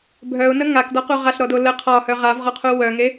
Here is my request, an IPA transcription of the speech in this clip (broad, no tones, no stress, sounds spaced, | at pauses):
bʱ œ ʊ̯ n ə ŋ a k d ɒ q u ʁ a ɬ ɾ ɔ d o l ə qʰ ɒ h œ ʁ a v ʁ ɔ qʰ u w œ ŋ e